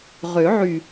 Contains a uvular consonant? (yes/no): yes